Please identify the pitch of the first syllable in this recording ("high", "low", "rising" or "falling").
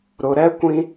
low